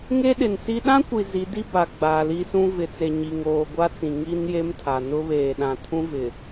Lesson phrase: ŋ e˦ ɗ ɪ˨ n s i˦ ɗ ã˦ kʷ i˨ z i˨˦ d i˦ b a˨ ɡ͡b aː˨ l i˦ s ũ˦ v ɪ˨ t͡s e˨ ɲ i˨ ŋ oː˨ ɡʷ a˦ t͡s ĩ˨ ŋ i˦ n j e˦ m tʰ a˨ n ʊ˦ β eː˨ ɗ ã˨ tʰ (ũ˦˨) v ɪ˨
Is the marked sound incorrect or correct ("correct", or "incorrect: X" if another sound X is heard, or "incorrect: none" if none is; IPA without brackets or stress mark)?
incorrect: ũ˦